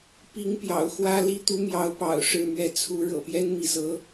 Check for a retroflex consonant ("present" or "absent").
present